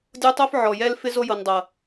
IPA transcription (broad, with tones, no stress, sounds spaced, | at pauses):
dʲ o˦ tˤ o˦ f ʕ ɔ˨ j ɛ˦ l f ɪ˦ z o˦ j ɤ˨ n dˤ ɤ˨